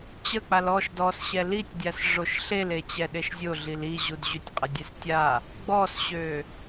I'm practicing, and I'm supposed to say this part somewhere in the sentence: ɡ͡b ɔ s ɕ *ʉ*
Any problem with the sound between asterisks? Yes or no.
yes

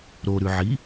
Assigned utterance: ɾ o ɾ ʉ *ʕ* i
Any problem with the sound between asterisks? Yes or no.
no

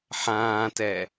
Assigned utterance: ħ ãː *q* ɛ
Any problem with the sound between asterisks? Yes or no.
yes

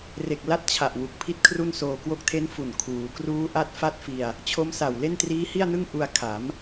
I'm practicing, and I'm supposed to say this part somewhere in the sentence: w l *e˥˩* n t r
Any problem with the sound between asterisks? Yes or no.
no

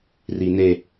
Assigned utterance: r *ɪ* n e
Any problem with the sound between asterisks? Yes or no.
yes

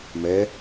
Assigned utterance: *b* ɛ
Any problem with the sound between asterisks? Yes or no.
yes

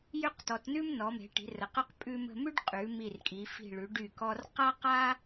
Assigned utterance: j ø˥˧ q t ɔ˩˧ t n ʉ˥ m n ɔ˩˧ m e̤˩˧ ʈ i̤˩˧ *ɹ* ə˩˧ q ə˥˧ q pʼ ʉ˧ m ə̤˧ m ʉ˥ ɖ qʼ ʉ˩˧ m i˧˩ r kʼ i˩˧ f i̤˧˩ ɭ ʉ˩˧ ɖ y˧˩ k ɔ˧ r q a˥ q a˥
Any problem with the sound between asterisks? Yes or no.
yes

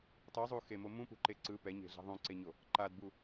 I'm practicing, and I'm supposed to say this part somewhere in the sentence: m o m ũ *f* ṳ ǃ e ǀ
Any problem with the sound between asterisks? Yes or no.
yes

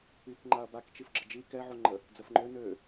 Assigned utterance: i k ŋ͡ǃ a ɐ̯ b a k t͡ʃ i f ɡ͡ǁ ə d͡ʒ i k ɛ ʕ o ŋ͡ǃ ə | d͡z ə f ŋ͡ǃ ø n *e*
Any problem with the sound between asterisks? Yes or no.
yes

